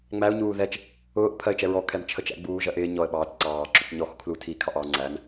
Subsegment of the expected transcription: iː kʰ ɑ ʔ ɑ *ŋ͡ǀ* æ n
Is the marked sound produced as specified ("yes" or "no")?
yes